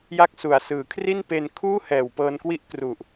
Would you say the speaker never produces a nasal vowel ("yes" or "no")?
yes